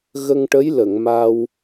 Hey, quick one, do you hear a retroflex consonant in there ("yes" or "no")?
yes